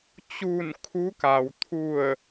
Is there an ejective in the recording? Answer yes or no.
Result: no